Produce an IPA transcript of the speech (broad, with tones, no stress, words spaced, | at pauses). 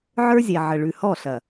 ʕə˞˦zʲɛ˨ ʕə˨ɭʉ˨hɔ˦˨ ɬɐ˨